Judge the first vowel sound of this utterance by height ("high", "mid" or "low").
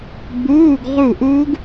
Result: high